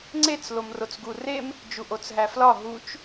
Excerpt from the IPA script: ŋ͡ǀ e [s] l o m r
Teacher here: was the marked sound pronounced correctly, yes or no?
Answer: no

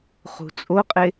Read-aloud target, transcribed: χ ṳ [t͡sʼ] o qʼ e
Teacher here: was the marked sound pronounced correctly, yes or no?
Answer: yes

